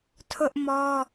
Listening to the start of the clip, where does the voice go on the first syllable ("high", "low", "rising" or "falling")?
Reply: high